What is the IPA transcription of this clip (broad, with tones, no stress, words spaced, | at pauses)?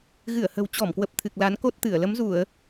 ɣɨ˧˩ə̯hə̤˨˩wt͡ɕɔ˧˩mkwə˨˩p̚ t̪ʰɨ˨˩k̚la˨˦n ko˦˥t̚t̪ɨ˧˩ə̯ lə˨˦mzu˧˩˨ə̯